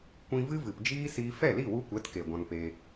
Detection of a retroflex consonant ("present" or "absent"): absent